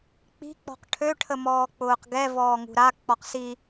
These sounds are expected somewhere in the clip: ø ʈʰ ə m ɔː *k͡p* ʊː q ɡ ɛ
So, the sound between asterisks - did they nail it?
yes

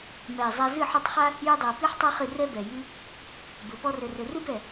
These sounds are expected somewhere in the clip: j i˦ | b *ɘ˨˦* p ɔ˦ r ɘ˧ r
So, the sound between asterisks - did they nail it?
yes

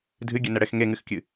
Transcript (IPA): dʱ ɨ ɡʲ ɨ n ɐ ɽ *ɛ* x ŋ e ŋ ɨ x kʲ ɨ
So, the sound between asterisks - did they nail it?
yes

